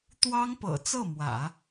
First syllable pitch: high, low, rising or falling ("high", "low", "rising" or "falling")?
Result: high